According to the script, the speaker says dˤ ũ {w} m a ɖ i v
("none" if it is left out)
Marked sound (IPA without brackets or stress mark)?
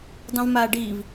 v